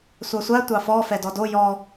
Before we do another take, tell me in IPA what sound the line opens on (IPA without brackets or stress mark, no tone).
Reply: sʷ